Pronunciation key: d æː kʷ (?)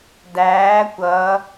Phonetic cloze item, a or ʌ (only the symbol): ʌ